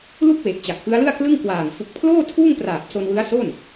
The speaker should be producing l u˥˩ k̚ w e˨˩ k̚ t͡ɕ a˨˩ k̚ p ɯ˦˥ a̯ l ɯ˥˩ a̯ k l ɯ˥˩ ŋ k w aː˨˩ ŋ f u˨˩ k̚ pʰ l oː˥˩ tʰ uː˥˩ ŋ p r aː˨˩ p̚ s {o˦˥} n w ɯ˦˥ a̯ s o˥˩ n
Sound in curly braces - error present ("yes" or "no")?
yes